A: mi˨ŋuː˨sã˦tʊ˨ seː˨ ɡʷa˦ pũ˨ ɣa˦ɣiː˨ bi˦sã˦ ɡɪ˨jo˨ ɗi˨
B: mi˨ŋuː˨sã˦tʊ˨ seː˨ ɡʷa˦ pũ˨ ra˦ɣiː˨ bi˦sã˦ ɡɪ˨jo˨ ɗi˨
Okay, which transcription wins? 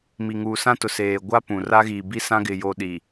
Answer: B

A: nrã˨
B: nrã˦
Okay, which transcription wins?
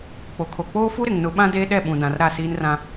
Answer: B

